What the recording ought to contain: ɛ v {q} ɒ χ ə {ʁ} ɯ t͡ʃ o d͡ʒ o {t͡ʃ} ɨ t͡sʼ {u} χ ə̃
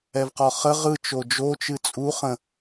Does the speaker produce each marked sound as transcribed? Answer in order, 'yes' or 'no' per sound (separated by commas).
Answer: yes, yes, yes, yes